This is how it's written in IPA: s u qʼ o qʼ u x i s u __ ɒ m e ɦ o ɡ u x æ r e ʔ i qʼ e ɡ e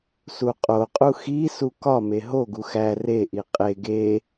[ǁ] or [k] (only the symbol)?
k